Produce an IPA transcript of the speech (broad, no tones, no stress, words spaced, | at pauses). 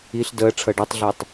iɬ dəːʈ͡ʂʰɤ ɖɔtˤɮetˤ